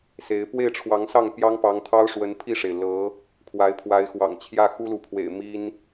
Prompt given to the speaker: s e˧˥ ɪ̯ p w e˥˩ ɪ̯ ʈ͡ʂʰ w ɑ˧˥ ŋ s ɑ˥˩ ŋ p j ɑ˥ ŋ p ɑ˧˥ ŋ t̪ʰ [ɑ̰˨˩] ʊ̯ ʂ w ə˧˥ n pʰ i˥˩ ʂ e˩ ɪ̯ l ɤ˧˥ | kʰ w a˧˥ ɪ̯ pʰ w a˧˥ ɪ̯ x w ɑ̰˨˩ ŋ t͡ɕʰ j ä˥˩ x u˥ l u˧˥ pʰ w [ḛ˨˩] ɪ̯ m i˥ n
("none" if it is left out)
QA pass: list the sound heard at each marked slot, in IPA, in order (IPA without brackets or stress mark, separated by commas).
ɑ˥, ḛ˨˩